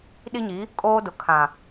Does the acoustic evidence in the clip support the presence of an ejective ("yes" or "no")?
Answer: yes